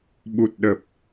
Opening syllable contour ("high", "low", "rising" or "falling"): low